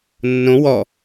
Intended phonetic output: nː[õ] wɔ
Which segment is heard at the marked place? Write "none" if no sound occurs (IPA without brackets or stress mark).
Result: õ